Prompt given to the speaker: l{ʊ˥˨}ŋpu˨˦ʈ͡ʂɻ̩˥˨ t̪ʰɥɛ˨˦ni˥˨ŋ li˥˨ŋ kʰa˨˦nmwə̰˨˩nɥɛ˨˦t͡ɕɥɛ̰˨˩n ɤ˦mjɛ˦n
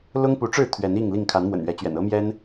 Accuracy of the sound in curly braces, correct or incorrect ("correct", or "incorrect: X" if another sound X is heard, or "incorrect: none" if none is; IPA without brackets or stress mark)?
incorrect: ʊ˦